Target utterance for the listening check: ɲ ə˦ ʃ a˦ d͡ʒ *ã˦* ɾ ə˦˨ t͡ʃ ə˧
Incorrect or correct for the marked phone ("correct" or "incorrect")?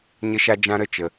correct